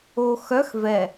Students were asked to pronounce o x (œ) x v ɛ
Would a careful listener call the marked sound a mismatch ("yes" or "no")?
no